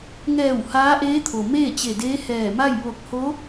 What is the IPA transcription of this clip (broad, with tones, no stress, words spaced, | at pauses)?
ŋɛː˧˩w haː˧˥ʔeː˧˥t̪ʰo˩ meː˥˨t͡ɕe˧˩ deː˧˥hɛː˧˩ma˥˨j ʋo˧˩k̚ho˧˥